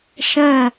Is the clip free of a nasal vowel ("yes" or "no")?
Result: no